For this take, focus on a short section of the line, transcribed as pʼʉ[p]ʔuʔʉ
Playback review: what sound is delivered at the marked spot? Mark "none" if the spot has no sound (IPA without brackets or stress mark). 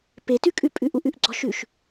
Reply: none